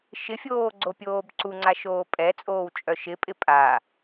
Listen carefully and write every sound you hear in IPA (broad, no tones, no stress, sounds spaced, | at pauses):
ʃ ɪ fʲ oː ɡ͡ǀ o pʲ oː b ǀ u ŋ͡ǀ a ʃ oː pʼ ɛ t͡sʼ oː w t͡ʃʼ œ ʃ ɪ pʼ ɪ pʼ a